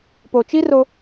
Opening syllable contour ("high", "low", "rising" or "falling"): low